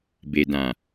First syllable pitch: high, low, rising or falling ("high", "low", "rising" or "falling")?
low